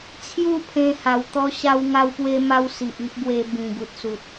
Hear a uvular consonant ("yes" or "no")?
no